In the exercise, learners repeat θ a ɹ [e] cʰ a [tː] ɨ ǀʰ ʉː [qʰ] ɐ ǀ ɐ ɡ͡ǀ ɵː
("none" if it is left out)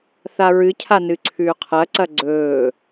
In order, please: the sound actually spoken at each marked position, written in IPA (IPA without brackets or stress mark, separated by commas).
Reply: ɨ, n, qʰ